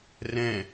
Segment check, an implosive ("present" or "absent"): absent